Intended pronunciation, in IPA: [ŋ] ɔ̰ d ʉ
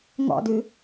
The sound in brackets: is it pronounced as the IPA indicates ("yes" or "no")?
yes